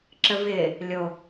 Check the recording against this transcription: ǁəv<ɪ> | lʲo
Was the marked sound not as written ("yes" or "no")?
no